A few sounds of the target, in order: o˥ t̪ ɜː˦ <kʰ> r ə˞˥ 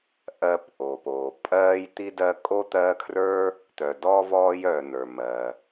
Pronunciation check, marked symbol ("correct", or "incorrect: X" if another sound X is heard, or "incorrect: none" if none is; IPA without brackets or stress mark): correct